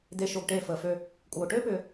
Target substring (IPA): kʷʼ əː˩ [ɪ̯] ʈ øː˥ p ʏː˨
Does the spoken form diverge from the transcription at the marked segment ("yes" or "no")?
yes